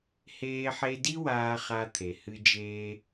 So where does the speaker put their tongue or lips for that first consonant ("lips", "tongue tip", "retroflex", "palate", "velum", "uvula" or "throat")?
throat